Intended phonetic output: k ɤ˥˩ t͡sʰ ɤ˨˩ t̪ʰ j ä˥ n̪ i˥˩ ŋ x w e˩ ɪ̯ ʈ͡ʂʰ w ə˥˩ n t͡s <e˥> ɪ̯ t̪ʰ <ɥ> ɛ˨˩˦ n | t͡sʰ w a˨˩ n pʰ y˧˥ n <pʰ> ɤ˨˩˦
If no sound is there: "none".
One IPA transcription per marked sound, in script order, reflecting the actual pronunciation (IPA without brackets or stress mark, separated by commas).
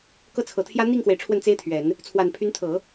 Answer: e˥, ɥ, t̪ʰ